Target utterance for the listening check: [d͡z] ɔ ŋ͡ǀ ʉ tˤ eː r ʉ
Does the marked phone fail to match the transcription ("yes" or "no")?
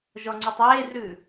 yes